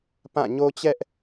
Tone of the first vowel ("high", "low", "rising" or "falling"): falling